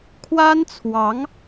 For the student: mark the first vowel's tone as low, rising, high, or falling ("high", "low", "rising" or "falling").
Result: high